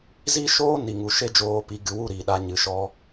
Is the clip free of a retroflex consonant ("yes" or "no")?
yes